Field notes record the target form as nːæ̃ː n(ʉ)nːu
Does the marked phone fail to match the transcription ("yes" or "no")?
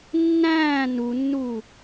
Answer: yes